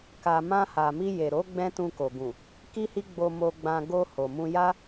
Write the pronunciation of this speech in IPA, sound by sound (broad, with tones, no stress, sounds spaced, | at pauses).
k a˨ m ã˧ h a˨ m i˧ j e˨ ɾ o˨˦ ɡ͡b ɛ̃˦ t ũ˧ k o˨ ɡ ũ˨ | k i˦ h i˦ ɡ͡b o˧ m o˧ ɡ͡b ã˧ ɡ o˧ h o˨ m ũ˧ j a˦